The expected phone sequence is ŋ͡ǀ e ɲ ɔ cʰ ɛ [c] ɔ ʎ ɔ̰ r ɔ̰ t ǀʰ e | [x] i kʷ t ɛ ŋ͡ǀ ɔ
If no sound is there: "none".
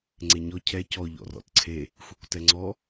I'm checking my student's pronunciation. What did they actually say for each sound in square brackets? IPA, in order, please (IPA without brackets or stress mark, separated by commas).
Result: c, xʷ